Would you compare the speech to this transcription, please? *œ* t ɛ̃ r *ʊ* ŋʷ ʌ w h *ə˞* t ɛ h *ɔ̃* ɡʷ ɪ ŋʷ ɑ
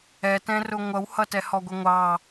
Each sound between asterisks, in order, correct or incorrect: incorrect, correct, incorrect, incorrect

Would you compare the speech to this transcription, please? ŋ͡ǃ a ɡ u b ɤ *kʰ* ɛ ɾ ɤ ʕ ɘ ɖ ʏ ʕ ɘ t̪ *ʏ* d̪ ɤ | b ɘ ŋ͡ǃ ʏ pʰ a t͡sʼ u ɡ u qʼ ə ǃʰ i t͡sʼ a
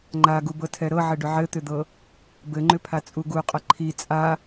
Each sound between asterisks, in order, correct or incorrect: incorrect, correct

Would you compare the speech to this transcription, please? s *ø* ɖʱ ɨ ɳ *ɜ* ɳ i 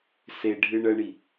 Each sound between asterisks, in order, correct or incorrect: incorrect, correct

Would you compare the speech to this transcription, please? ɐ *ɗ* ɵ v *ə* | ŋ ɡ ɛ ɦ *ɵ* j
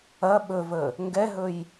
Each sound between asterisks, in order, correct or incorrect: incorrect, correct, correct

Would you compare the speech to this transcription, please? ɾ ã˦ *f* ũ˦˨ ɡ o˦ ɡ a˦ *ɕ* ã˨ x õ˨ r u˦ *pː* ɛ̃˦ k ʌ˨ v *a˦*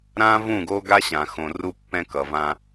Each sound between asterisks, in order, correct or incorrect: incorrect, correct, correct, incorrect

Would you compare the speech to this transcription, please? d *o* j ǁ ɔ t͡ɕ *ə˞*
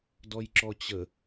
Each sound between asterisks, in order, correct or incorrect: incorrect, incorrect

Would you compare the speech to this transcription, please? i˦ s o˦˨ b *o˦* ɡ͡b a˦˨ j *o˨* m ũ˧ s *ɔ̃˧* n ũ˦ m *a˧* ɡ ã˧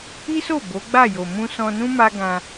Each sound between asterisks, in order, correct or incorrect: incorrect, correct, correct, incorrect

